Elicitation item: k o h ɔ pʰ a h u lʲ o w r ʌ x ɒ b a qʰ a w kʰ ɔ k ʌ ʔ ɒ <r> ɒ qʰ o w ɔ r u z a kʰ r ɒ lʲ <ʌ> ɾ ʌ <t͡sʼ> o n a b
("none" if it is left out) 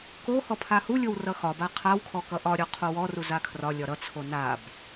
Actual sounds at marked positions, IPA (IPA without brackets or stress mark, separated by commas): ɾʲ, ɒ, t͡sʰ